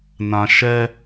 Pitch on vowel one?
low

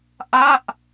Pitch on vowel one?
falling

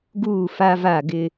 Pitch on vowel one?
falling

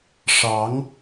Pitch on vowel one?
rising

